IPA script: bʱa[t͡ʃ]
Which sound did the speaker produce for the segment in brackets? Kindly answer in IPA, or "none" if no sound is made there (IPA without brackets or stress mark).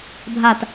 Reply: t